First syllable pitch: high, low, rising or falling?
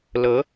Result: rising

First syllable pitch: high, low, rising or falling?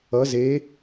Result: rising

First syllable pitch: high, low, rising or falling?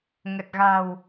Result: low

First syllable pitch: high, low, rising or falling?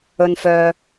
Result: low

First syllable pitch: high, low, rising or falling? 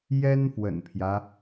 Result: high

